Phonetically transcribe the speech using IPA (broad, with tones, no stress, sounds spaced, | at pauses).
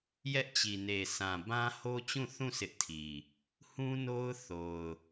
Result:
j ɛ˦ ʔ t͡ɕ i˨ n e˨ s ã˨ b ã˦ h o˦ t͡ɕ ũ˦˨ θ ũ˦˨ s ɪ˦ ʔ tʰ i˨ | h ũ˦ n o˦ ʊ̯ θ o˨ ʊ̯